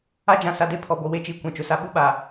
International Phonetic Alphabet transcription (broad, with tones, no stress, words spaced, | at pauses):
a˦d͡ʒã˨ sa˨de˦pʰɔ˨bo˨ we˦t͡ʃiː˨ kʷã˨t͡ʃʊ˨sa˦ ɓu˦˨ɓaː˨